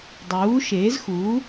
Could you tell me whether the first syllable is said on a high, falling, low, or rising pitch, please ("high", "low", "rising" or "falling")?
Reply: rising